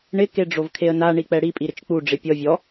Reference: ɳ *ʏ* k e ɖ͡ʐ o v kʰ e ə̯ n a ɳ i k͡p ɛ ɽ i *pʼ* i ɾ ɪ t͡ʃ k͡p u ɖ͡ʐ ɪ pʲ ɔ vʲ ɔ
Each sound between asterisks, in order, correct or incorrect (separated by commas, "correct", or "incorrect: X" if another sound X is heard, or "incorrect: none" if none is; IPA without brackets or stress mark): incorrect: ɪ, correct